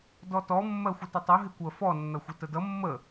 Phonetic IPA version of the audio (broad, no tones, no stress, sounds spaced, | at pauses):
d ɔ t ɔ mː ɜ xʷ ə t ɪ tˤ ʌ ɦ ɪ kʷ ɜ f ɔ nː ʌ xʷ ɪ t ə d ʌ mː ə